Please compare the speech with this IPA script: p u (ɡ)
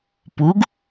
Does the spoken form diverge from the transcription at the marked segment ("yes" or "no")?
no